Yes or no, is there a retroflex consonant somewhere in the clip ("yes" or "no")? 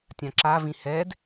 no